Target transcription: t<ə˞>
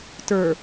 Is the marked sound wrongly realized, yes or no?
no